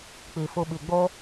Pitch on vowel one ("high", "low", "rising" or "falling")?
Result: low